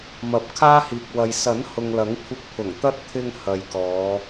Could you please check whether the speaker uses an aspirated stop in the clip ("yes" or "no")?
yes